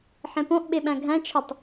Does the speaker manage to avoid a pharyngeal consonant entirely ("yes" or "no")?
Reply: no